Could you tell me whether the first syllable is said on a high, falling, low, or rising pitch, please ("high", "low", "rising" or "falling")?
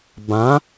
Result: rising